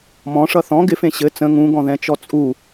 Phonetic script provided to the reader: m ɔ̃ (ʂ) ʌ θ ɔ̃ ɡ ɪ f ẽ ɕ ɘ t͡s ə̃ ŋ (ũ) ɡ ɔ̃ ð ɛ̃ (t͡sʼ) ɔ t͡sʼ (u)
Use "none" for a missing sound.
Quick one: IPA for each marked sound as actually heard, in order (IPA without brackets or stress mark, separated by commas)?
ʂ, ũ, t͡ʃ, u